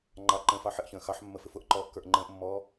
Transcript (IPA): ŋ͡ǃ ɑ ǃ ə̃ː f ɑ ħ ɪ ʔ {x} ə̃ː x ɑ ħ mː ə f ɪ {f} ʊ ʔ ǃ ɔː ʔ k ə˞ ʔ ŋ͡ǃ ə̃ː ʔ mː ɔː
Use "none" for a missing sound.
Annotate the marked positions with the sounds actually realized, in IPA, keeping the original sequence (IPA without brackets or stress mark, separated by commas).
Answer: ç, f